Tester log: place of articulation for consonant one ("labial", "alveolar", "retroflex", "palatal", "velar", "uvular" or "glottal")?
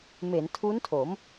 labial